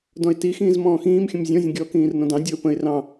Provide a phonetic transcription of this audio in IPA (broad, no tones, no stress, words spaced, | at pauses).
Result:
dɔ̃ɪ̯ti xĩːzmɔ̃ːxĩːmxʲə̃m zʲɔ̃zʲə̃ ɡʲɔkĩːr nɔ̃dɑ̃ dʲɔʊ̯pə̃ɪ̯ rɑ̃